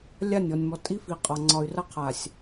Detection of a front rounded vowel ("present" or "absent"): present